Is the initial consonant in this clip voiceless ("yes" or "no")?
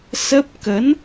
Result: yes